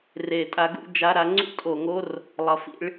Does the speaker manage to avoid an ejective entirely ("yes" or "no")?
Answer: no